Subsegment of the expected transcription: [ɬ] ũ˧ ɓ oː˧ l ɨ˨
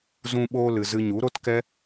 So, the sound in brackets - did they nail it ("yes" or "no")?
no